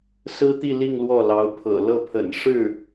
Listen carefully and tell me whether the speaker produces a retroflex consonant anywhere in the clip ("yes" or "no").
yes